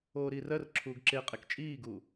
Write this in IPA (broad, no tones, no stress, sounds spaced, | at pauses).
oː ɾ iː r ɜ r ǁʰ uː ɡ ǁ e qʼ e k t͡ʃʼ iː ɡ uː